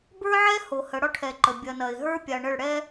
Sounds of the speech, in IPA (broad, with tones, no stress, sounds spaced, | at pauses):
b ə˞˦ ʕ ɛ˦ h o˨ h ə˨˦ ɽ ɒ˦ ʈʰ ɛ˨ ǃ ə˨ bʲ ɐ˨ n ɐ˨ ɪ̯ ɦ ə˞˦ pʲ a˨ ɳ ə˦˨ ɭ ɽ ɛ˦